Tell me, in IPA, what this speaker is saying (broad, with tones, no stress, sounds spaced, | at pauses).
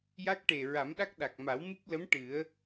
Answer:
j a˦˥ k̚ ʈ e˨˩ ɹ a˨˩˦ m ɗ a˦˥ k̚ ɗ a˨˩ k̚ m a˨˩˦ w m ɨ˦˥ p̚ l ə˧˥ m ʈ ɨ˨˩˦ ə̯